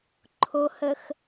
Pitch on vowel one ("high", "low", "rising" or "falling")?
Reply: low